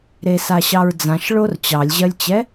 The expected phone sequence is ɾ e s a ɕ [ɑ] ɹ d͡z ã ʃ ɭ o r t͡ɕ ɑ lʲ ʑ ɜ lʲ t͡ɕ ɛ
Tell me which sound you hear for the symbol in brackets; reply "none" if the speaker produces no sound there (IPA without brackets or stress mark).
ɑ